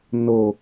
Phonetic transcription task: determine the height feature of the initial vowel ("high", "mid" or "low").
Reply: mid